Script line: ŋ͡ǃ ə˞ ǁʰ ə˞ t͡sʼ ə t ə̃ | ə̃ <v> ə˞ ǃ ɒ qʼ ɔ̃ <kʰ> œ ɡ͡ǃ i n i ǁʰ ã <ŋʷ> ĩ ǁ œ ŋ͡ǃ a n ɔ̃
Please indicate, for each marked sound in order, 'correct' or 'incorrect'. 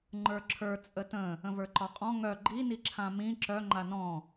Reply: correct, incorrect, incorrect

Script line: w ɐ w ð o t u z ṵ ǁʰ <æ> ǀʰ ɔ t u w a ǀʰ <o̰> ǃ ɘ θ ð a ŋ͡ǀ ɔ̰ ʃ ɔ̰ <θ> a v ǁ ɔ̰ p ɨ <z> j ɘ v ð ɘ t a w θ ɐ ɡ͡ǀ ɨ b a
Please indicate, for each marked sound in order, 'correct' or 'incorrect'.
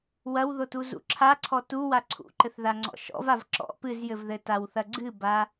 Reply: incorrect, incorrect, incorrect, correct

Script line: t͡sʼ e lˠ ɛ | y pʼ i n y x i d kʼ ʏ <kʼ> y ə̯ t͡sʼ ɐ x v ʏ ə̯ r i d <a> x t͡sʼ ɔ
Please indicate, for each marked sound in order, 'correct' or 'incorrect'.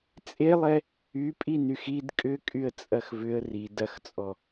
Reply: correct, incorrect

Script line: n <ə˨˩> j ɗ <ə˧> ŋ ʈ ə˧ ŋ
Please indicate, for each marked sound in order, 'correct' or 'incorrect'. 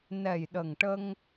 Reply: incorrect, incorrect

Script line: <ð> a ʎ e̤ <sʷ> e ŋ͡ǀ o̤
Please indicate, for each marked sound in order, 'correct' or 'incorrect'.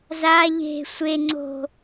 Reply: incorrect, correct

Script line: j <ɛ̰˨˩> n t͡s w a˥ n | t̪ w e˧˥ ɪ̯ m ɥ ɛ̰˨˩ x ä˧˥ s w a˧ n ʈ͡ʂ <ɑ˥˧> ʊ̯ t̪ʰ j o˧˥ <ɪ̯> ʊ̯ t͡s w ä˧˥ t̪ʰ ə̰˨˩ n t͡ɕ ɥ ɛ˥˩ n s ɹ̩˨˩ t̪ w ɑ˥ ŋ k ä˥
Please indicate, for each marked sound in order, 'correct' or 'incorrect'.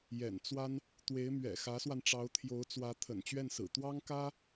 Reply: correct, incorrect, incorrect

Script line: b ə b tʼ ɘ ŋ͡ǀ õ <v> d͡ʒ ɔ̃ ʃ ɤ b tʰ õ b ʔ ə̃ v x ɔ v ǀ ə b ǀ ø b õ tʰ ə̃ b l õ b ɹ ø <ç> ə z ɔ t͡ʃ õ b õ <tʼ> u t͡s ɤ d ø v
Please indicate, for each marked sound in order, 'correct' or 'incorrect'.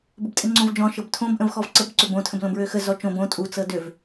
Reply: correct, incorrect, correct

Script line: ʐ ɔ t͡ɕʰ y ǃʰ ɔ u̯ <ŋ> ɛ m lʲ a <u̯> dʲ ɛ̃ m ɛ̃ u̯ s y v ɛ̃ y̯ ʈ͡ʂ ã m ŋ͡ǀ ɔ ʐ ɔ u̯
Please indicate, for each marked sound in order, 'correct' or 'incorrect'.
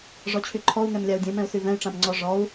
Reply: correct, correct

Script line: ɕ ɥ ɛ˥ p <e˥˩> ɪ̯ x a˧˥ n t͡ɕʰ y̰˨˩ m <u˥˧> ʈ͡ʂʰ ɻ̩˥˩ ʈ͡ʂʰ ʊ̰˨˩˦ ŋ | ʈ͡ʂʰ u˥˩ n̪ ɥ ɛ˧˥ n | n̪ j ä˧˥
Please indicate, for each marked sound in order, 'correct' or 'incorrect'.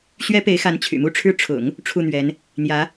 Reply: incorrect, correct

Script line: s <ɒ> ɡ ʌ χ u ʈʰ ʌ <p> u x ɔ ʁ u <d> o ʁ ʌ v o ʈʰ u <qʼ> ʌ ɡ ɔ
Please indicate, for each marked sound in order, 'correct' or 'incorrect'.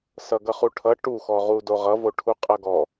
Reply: incorrect, incorrect, correct, correct

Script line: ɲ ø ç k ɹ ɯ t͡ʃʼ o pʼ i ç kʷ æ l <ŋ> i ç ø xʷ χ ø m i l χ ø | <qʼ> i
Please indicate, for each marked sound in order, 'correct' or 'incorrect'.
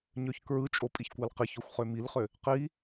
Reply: incorrect, incorrect

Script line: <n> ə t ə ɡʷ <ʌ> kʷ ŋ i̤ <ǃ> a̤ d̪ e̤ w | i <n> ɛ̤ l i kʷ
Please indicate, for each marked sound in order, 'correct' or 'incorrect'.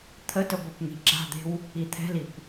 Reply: incorrect, correct, incorrect, incorrect

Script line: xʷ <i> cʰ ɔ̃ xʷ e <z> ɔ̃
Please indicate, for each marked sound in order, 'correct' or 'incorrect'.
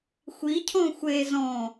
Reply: correct, correct

